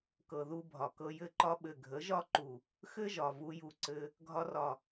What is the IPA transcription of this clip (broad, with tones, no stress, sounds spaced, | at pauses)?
k ɤ˨ ð u˧ bʱ ɒ˨ k ɤ˧ j ɘ˧ ǃ ɒ˧ ɓ ɘ˨ ɡʱ ə˨˦ ʒ ɒ˦ ǃ u˨ | x ɘ˦ ʒ ɒ˨ v u˧ j u˧ ǀ ɘ˧ | ɡʱ ɒ˧ r ɒ˨